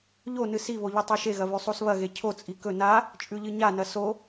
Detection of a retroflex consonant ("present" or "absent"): absent